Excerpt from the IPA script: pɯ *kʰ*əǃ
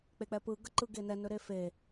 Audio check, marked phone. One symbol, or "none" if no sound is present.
ɡ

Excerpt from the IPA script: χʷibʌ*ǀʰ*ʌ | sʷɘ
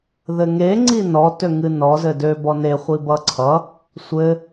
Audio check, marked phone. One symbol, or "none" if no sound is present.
ǀʰ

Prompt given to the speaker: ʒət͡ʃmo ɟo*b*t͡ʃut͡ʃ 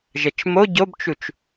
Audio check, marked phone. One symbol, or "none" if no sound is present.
b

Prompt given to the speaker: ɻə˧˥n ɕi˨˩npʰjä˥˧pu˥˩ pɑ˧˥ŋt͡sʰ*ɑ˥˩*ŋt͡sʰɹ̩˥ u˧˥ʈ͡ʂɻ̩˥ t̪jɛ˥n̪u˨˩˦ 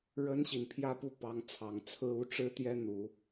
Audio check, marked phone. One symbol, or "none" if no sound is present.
ɑ˨˩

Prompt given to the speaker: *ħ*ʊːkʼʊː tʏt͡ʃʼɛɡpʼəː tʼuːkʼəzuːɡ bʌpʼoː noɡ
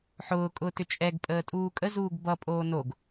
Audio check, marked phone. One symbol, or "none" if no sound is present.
ħ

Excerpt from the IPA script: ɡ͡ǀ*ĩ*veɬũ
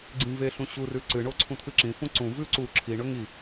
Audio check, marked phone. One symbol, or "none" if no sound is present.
ĩ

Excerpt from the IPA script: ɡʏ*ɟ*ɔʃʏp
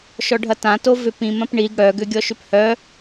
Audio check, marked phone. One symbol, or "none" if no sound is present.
ɡʲ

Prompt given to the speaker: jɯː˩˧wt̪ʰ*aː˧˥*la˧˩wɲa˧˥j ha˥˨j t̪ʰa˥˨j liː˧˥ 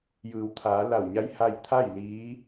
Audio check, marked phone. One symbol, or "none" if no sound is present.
aː˩˧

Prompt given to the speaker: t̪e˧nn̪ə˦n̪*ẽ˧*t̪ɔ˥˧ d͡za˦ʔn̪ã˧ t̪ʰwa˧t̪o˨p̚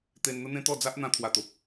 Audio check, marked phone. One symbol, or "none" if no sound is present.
ẽ˦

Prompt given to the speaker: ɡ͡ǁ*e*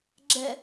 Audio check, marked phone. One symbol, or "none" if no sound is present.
ɛ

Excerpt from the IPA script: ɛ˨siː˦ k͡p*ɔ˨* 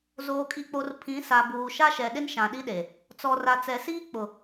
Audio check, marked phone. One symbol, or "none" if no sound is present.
ʊ˨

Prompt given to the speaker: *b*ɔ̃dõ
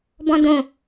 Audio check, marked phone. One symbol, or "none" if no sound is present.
b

